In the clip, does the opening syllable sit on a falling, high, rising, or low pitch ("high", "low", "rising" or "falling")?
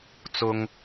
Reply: high